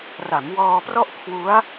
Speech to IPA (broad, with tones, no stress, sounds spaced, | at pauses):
r a˩˦ m w ɔː˧ p r ɔ˥˩ ʔ kʰ w u˦˥ a̯